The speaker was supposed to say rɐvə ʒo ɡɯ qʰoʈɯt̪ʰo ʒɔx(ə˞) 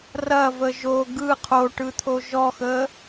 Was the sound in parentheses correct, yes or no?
no